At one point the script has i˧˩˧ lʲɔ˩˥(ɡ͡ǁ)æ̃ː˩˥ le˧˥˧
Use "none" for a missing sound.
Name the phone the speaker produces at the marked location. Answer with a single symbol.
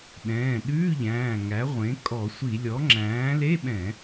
ŋ͡ǁ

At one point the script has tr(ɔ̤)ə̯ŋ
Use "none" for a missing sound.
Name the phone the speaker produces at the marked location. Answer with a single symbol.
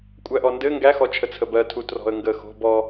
ɔ̤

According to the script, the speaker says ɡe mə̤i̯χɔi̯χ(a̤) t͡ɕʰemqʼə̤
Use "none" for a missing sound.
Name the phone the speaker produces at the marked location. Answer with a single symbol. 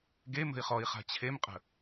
a̤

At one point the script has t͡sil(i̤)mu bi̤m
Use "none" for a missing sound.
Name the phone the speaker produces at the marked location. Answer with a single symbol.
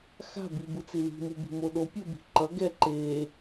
i̤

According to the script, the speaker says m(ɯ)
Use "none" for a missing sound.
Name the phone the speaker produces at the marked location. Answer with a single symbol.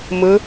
ɯ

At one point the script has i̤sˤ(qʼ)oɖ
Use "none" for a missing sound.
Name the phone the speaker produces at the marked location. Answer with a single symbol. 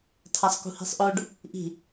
ʔ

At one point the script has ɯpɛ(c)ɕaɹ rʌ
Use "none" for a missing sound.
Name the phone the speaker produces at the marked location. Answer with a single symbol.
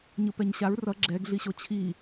ɲ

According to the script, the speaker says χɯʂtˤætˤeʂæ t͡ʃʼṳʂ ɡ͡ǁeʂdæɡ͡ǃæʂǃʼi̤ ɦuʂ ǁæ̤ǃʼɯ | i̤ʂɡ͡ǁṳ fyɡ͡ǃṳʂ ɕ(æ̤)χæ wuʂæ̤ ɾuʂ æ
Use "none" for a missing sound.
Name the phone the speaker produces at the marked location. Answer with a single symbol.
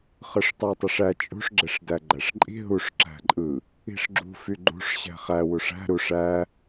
æ̤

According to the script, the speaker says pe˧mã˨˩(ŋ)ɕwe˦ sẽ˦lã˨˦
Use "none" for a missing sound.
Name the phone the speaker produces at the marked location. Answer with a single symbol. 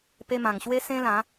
ŋ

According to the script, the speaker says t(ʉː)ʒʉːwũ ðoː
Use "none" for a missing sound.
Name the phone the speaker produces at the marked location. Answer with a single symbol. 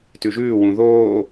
ʉ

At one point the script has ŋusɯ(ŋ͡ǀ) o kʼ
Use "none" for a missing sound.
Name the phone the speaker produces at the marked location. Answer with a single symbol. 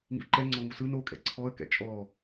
n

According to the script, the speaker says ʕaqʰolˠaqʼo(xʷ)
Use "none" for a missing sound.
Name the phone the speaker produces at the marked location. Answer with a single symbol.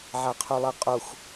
xʷ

